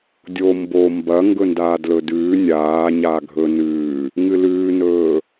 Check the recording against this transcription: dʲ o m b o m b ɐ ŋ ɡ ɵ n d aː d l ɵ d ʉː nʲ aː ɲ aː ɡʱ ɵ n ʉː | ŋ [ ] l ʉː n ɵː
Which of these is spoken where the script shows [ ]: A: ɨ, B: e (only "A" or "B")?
A